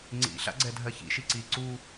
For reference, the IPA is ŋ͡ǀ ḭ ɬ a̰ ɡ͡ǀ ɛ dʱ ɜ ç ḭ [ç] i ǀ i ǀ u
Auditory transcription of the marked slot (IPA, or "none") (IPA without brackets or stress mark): ʃ